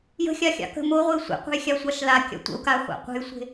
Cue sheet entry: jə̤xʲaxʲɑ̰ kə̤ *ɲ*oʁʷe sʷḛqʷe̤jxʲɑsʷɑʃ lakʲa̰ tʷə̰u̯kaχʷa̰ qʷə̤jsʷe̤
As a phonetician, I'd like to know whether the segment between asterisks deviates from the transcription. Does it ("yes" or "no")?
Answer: yes